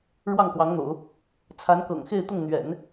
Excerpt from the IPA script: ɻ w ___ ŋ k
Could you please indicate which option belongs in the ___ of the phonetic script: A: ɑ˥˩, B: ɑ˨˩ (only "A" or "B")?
A